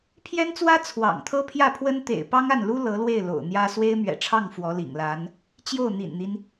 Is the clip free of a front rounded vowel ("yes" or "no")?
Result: yes